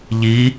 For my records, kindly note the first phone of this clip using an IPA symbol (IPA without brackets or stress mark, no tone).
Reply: ʎ